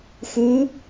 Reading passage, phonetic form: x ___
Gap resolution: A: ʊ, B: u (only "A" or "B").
B